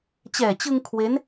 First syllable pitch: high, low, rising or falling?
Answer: low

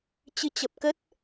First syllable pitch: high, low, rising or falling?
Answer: rising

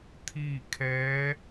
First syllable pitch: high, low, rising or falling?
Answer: falling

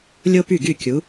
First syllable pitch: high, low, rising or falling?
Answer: high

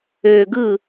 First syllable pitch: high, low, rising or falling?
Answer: low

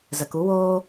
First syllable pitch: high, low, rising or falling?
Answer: low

